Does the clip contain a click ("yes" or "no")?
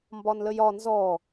no